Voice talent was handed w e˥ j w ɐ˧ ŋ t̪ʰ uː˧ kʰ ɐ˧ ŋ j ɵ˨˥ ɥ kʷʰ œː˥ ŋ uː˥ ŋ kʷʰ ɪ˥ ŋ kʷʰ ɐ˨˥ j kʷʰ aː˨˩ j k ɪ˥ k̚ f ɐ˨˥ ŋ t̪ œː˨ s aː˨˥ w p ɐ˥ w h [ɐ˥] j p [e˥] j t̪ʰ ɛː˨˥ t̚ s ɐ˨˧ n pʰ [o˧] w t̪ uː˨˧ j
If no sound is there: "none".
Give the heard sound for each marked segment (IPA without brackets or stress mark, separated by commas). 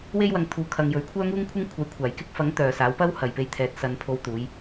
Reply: ɐ˨, e˧, o˧